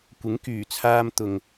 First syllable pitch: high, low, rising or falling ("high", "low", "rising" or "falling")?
rising